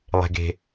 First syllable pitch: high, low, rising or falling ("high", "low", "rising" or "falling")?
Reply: low